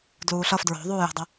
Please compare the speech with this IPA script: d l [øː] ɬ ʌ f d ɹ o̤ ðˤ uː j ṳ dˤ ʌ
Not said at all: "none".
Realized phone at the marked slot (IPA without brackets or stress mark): uː